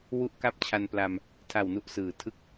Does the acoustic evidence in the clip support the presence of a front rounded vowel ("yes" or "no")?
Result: no